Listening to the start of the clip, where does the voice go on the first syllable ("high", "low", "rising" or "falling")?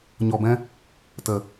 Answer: low